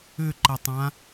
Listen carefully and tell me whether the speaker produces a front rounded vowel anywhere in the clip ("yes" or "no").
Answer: yes